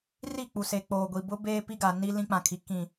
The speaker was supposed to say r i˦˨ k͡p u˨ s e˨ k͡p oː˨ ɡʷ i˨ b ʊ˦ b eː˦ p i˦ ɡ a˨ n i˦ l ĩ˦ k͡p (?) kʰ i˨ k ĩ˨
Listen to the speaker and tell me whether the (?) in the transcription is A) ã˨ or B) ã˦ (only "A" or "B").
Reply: A